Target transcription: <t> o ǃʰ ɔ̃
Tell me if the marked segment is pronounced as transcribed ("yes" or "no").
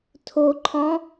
no